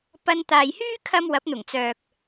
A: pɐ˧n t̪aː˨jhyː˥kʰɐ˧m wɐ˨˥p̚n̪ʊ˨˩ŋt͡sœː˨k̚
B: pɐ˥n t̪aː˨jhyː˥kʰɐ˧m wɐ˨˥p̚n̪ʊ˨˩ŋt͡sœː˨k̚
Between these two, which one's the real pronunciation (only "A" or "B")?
A